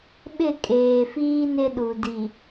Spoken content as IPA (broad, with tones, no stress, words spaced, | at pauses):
ɓɪ˦˨kʼeː˨fiː˦ nɪ˦ɗu˨ di˨